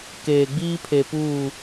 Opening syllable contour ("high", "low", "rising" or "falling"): low